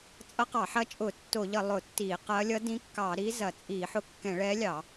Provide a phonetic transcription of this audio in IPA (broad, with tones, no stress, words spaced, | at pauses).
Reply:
t͡sʼʌ˧˥qɑ˧˩˧ħɐ˧˥ t͡ʃʼʊ˧˩˧ tːo˧˩˧ʎʌ˧˩˧ lˠʊ˧˩˧tːi˧˩˧qɐ˧˥ lʲʌ˧˥dĩ˧˥kːɑ˧˩˧ɾi˧˥ zɐ˧˩˧t͡sʼi˧˩˧ħʊ˧˥ kːɛ̃˧˩˧ɭɛ˧˥lʲɑ˧˩˧